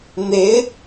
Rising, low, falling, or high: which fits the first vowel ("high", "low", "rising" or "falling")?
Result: rising